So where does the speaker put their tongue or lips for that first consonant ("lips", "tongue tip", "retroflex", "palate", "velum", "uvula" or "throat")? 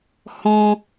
throat